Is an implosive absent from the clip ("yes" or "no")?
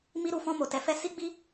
yes